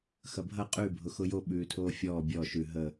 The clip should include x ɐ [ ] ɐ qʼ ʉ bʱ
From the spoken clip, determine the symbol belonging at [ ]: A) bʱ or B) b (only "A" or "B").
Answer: A